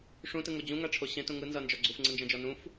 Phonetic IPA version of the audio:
ʂ ũ t ɯ ŋ o d͡ʑ ũ ŋ a ʈ͡ʂʰ o ɕ ẽ t ũ ŋ ɯ n z ʌ n d͡ʒ ɔ ɡ͡ǀ u f ŋ͡ǀ ɯ n d͡ʒ ɐ̃ d͡ʒ ɔ n ũ f

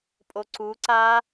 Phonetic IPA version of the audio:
pʼ o ǀ u ǀ aː

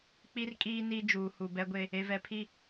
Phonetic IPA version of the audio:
k͡p i˦ r kʼ iː˦ n i˦ d͡ʒ uː˨ h u˨ b ɛ˦ ɡʷ e˦ | e˨ v ɛ˨ pʰ i˦

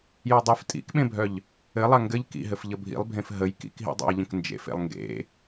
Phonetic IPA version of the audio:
j ə˞ dˤ e f tʼ ḭ k ɓ ẽ bʱ œ ʎ | ɘ lˠ a ŋ ɡ ɘ ʎ k ḭ ɦ ɘ f ʎ ə bʱ ḭ lˠ bʱ ẽ f ɦ ə j k ḭ k ɦ ḭ dˤ a̰ j ʎ ə̃ k n d͡ʒ ḛ f ḛ lˠ ŋ ɡ ḛ

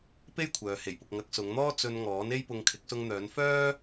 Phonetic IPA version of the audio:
p e˥ j kʷʰ œː˨ h e˨˩ j p ʊ˨ k̚ ŋ ɐ˨˥ k̚ s ʊ˨˧ ŋ n̪ ɔː˥ t͡s ɵ˧ n ŋ ɔː˨˥ n e˥ j p ʊ˧ ŋ kʰ ɪ˨˥ k̚ s ʊ˧ ŋ n̪ œː˨˧ n f œː˥

